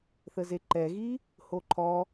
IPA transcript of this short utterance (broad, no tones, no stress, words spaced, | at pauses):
θəzeǃɛɣi | hoǃʰɔ